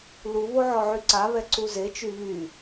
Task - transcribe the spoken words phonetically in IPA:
luβo ʕɔʕyǀaβɛ ǀuzet͡ʃy βy

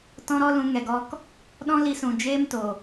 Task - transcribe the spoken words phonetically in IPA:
tɔ̃˦ɾɔ˦lũ˧ ŋɛ˨ɡɔ˧k | ɗɔ̃˦li˧sũ˨ d͡ʒeː˦mto˨

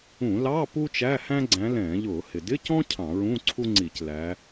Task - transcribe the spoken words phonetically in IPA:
ũ˧˩˧ lɑ˧˥˧ pu˥t͡ʃæ˧˥˧hæ̃˥ ɡ͡ǀæ̃˨˦lɛ̃ː˧˩˧ʎʊː˧˩˧ hɪ˩dɪ˧˥˧cɔ̃˥ cʰɑ̃˧˩˧ɹũ˧˥˧ǀʰu˥ŋ͡ǀi˧˩˧c læ˨˦

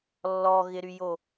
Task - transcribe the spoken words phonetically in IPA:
lːɔɣɪɾyjo

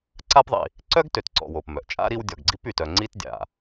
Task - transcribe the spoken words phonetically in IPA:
ǀa˦pðˤḭ˨ | ǀœ˥ɡ tø˨tǀɔ̰˨wo˩p mœ˩ʔ t͡ʃʼa̰˥ɾi˦w dʲɔ˨ɡɡ͡ǀi˥p y˩tœ˨ ŋ͡ǀi˦t dʲa̰˩

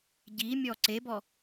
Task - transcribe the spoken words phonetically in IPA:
ɟimʲɔ ǀebɔ

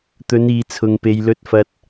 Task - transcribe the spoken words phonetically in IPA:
t̪ɵ˨˧niː˨t͡sʰʊ˨ŋpe˨j lɵ˨t̚fɐ˨t̚

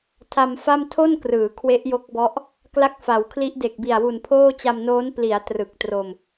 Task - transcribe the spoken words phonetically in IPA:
tʰa˧mfa˥˩m tʰo˥˩nkrɯː˩˦ kʰwe˦˥ʔjo˦˥k̚bɔ˦˥ʔ | kla˦˥k̚fa˩˦wkʰli˦˥ʔde˨˩k̚ bi˨˩a̯wu˨˩npʰoː˥˩t͡ɕa˧m noː˦˥n pli˩˦a̯ trɯ˨˩k̚tro˧m

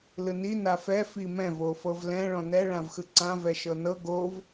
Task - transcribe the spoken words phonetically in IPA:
lɯni nafɛ fimɛ̃ vofɤvlɛ̃ ɭɔ̃nɛ ɭãvxɯǀã vɛʃɤnɤ ɡov

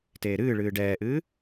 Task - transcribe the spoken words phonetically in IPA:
teːɾɨːɭɨː ɖɛːʔɨː

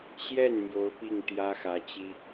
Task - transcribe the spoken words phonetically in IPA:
ɕjɛ˥˩n mjo˧˥ʊ̯pi˥˩ŋ t̪jä˥xä˧˥t͡ɕi˥

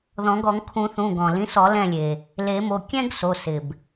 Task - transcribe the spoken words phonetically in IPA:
ðɔ̃˨˩˦ɡɔ˨˩˦ŋ kʰũ˨˩˦θũ˩˧˩ɡɔ̃˩ lĩ˨˥sɔ˨˩˦ lɛ̃˦˨lʲe˩ | le˨˩˦mo˩˧˩ kʲɛ̃˥ɡso˩˧˩sɪ˩b

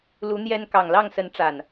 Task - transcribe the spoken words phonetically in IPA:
lu˨˦ n̪jɛ˦n kɑ˨˩ŋlɑ˥˨ŋsə˨˦n ʈ͡ʂa˨˩n

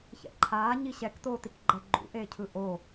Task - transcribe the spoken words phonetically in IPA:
çɛ̰ǃʰaː ɲiɕɛktoːtik ɡ͡ǃɛɡ͡ǃṵʔeːcʰɯ ʔo

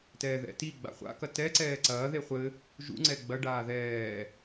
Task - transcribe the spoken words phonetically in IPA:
tɛːðɛ̰tiɡ͡ba̰ χʷa̰kɐ tɛ ǀɛːǀɐːðe χʷɘ | ʒṵŋ͡ǀɛ ɡ͡bɐɖaː ðɛː

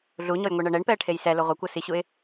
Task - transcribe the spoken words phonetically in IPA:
ɮuɲɔjŋʷeɳɤ ɳɛɳpɛə̯ʈʰej sɛlo ʁʷekʷɤ siɕuɪ̯

